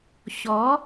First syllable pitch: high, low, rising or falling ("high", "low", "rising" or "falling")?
rising